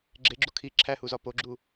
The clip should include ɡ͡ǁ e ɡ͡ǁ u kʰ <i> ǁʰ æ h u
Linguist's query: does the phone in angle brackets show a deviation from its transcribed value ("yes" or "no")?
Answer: no